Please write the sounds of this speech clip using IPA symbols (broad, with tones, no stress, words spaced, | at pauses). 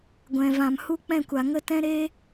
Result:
ɡʷɛ̃˨ vã˨mhu˧ k͡pɛ̃˦˨kʷa˨ŋə˦ tɛ̃˦ɾeː˦